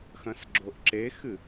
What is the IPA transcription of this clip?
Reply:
xɐ̃sɡ͡ǁoʔǁexɨ

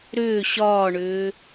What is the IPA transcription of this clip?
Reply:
ɾʏː ɕɒːɳʏː

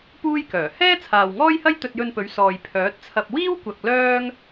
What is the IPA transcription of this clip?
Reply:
puː˥jkœː˨˩ hɛː˥ t͡sʰaː˨wŋɔː˥jhɐ˥j t̪ɵ˧t̚jɵ˧npɵ˨˧ɥ sɔː˨j pʰœː˨˥t̚t͡sʰɐ˧p̚ wiː˥w kʷɐ˨k̚ lœː˥ŋ

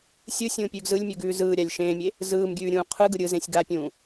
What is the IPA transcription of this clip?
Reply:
sʲɯsʲũːpʲʉːɡ zɯlʲmʲʉɡʉː zɯːɾʲalʲ ʃẽːmʲe | zɯːmɡʲʉːɾʲũː qʰɯɡɯ ɾʲɯzẽsʲ ɡapʲũː

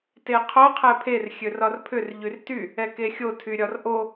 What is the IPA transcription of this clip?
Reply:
teqʰo qʰɛpʰer xʲørɒrpʰʏr ʎyrty | ɛkexʲo tʰyɾʲɒrʔo

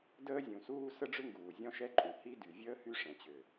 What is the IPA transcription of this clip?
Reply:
dəː˥zʲũ˩suː˥ sə˥ɖ͡ʐʏ˥ŋɡuː˩ zʲɔ̃˥ʃɛ˥ǃʼũ˩ hi˥ dy˩vʲəː˥ hy˥ʂɛ̃˩t͡ɕʏ˩

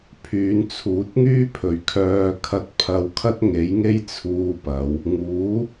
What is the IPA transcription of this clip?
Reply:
pʰyː˨˧nt͡sʰuː˨˥t̚ŋyː˥ pʰɵ˨ɥkʰœː˧ kʰɐ˥t̚ pʰɐ˧wkʰɐ˥t̚ŋe˨˥jŋe˥j t͡sʰuː˧pɐ˨˧w | ŋuː˨˥

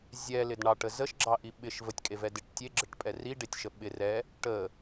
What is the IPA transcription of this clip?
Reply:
zʲɛlɪd ɳɑʈə zəʃɡ͡ǁɑʔi ɓɪʃ vətʲkʼevɛ dɪʈ tʲeɡ͡ǁəʈpʼɛ riɖetʲʃə ɓɪ rɛ | ʈə

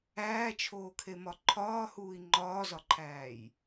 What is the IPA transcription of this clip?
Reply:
æːt͡ʃʰoːkʰemɒ ǃʰɒːhuːi̯ ŋ͡ǃɒːzɒǃʰæːj

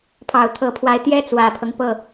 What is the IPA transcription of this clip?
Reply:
pʰɑ˨˩ʊ̯t̪ʰɤ˧˥pʰwa˧˥ɪ̯ t̪jɛ˥ t͡swä˨˩pʰɤ˦ŋ pɤ˥˩

